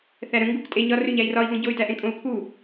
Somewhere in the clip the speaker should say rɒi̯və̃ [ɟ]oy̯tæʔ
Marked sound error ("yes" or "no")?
no